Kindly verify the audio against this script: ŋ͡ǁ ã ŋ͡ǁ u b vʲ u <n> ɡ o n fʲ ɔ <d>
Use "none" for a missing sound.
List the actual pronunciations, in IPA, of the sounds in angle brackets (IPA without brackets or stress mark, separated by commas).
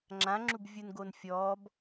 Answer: n, b